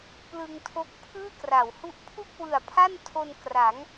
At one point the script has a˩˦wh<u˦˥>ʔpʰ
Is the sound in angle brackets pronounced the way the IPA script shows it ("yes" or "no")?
yes